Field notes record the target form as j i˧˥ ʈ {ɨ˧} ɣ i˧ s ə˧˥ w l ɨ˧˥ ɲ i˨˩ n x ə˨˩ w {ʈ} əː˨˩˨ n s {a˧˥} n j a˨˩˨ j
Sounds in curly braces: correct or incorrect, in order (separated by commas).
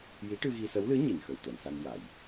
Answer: correct, incorrect, incorrect